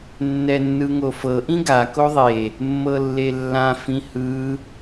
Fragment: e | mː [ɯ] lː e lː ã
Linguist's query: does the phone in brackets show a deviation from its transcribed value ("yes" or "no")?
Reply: yes